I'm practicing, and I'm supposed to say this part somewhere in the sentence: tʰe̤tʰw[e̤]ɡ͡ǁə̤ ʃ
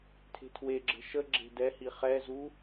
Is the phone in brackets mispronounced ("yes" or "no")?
yes